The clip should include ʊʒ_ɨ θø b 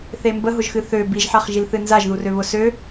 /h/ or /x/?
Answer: x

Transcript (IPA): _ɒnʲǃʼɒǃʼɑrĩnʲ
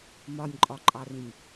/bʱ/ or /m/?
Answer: m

